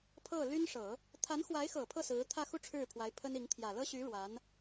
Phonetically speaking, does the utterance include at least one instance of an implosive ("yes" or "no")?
no